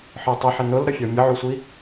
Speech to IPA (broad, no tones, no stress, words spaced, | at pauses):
ħə˞tˤəħɪ nʊlɾəfʲɔ mʲəʕusʷi